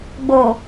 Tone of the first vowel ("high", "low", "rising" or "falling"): low